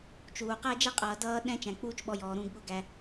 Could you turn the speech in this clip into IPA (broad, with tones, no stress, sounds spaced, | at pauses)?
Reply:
t͡ʃ uː˩ q æː˦ d͡ʒ ɛ˦ qʼ ʌː˩ d ʌː˦ ɗ ɛ̃˦ t͡ʃ æ̃˩ k͡p uː˦ t͡ʃ ɓ ɔ˨ j ɔː˩ ɾ ũː˨ ɡ ɠ ʊ˨ ɡ æ˩